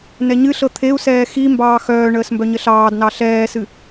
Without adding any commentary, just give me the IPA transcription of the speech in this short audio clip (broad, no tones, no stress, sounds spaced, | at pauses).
n ɛ ɲ ɨ ɬ ɤ t̪ʰ e u̯ s ɛː x i m b ɑː x œː ɳ əː s m b œ ɲ ə ɬ ɑː d n ɑ ɬ ɛː s ɨ